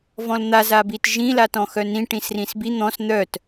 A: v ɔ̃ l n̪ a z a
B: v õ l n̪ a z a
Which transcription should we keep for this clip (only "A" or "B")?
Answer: A